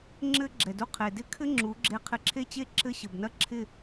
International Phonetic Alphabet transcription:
ŋ͡ǁɘ˦ ɡ͡ǁɛ˨du˧ qʰe˨dɪ˦kʰɘ˦ ŋ͡ǁu˨˦ɡ͡ǁe˧ qʰɪ˧ǁʰe˦t͡ɕe˦ ǁɘ˦ɕɘ˨bnɐ˦ ǁʰɪ˦˨

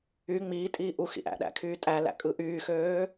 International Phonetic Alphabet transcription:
y ŋ͡miːtʼiː ʔu xḭʔæ̰ɗæ̰ kʰyːtʼælæ̰ kʼɯʔyːxøː

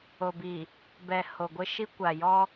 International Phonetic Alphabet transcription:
o˨bi˨ | bɛ˨ ho˨ɡʷɪ˦ʃi˦ kʷa˨jɔ˦

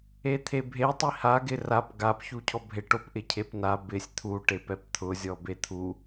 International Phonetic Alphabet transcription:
et̪ʰebʱetˤi haɡɪ rap ɡapçu cʰɔbʱeʈopʔɪ cʰepna bɪsʲ t̪ʰuʈepɛp t̪ʰʊzʲɔ bet̪ʰu

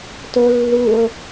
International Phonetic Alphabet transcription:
to lːuo̯

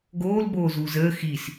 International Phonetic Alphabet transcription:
ɡoːl boːzuːzəː xis

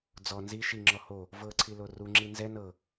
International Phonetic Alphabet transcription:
d͡zɔ nzi ʃiŋ͡ǁɔ ho | vɤǀʰilo ruŋ͡ǁi nzɛ nɤ

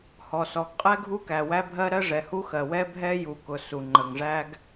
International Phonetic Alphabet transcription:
hɔ˩sɔ˩ɡ qʼɛ˥ɡʱu˥kæ˩ wæ˥bʱɜ˥ ɾɜ˥ʐɛ˩hu˥xɜ˩ wɛ˥bʱɛ˥ ju˩kʊ˩ su˩ŋ͡ǃə˩ŋʐæ˥ɡ

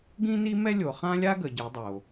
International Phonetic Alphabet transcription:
ɡĩ˦ni˦mɛ˦lʲo˨ χã˦lʲa˦ ɡə˨ ɟi˨˦dˤo˨

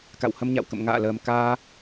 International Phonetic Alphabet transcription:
ka̰˧˨whə˧mɲa̰˧˨wkə̰˧˨m ŋa̰ː˧˨ləː˨˩m kaː˧

